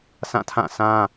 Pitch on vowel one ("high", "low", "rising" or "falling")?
falling